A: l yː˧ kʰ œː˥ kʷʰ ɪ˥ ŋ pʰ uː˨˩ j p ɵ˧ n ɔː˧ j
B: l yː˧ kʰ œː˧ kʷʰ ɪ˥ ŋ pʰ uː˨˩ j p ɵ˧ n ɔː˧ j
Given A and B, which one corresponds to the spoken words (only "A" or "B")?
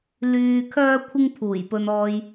A